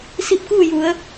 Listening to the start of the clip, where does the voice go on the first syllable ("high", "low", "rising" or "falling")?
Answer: rising